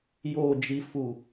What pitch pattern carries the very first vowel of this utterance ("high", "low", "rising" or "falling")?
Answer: low